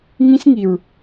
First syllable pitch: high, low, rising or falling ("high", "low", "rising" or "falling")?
high